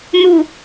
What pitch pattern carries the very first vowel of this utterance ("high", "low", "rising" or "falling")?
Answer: low